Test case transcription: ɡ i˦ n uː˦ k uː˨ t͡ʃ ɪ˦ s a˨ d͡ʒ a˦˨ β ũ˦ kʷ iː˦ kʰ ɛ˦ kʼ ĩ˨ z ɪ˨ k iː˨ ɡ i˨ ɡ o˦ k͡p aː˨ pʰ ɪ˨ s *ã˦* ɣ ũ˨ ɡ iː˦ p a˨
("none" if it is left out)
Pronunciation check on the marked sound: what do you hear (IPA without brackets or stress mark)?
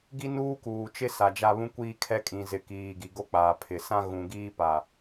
ã˦